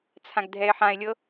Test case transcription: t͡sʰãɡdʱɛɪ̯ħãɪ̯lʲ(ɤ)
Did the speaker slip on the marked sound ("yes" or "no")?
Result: no